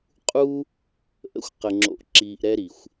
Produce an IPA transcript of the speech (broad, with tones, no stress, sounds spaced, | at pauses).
qʼ u˦ | ʔ ə̰˧ xʷ q ə˨ ŋ͡ǁ o̰˨ ʔ ǁ iː˨ ʔ ɾ ɛ˧ ɾ i˨ xʷ